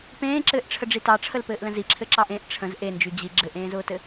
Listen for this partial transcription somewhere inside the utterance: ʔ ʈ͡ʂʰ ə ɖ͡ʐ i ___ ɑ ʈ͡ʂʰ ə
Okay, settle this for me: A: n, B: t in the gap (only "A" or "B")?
B